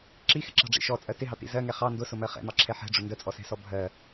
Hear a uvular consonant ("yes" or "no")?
yes